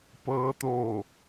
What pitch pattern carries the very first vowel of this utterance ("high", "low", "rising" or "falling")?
rising